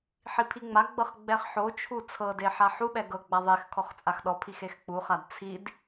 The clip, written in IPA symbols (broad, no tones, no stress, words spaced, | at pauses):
ħipʰiŋ͡maɡ͡bɤχ ɡ͡bɛχħot͡ʃʰu t͡sʰɤde ħaħuɓɛ ɡɤɡ͡ba ðˤex kʰɔχt͡sʼaxɗɔpʰix exk͡puχad t͡sʰid